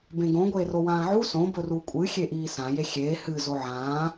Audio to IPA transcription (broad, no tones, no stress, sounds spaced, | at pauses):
b ẽ ɡ õ ɡʷ eː r o w ãː ʕ u s õ b ɵ r u kʷʼ ɨ xʲ e ʔ iː s ã j e xʲ eː h ɨ z o ʕ ãː